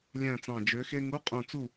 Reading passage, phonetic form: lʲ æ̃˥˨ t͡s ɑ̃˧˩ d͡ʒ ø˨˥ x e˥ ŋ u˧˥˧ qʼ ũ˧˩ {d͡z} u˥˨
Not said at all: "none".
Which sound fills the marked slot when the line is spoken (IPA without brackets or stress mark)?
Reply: t͡s